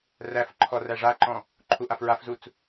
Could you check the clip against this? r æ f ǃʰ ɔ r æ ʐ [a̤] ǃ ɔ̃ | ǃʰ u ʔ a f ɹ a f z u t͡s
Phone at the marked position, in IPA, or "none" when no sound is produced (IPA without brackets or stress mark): a